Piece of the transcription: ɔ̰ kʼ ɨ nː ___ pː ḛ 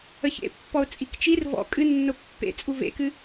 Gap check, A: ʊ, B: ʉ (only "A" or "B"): A